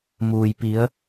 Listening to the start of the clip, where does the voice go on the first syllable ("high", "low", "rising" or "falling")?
low